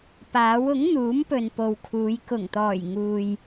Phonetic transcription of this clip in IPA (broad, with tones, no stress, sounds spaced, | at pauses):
p aː˨˥ w ʊ˨˥ ŋ n̪ uː˨˥ m p ɵ˨ n p o˨ w kʰ uː˨˧ j k ʊ˨˩ ŋ t̪ ɔː˨˩ j ŋ uː˨ j